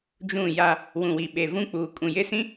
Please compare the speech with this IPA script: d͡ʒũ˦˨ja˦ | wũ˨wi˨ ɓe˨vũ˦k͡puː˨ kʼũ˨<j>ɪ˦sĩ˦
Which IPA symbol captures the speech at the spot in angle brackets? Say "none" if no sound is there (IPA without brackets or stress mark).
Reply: j